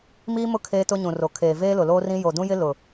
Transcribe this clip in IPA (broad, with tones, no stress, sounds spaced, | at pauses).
m iː˦ m ʊ˦ kʰ eː˦ t ʊ˦ ɲ ũ˨ r o˨ kʰ eː˨ v eː˦ l ʊ˨ l oː˦ r ĩ˦ j o˨ d ũ˦ j ɪ˦ l ʊ˨